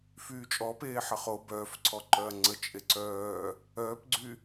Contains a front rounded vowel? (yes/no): yes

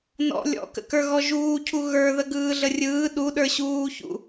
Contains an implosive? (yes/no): yes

